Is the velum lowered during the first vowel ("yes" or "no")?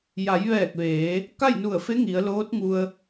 no